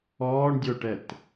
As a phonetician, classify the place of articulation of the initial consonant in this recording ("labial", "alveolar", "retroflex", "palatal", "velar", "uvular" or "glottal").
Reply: retroflex